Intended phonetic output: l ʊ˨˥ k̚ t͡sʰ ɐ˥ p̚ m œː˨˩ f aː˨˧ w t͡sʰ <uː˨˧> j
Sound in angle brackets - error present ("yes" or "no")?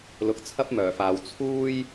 yes